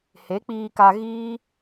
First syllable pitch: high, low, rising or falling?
rising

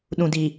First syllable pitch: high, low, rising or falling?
low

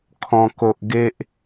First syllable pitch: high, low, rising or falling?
high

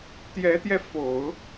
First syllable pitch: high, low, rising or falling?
rising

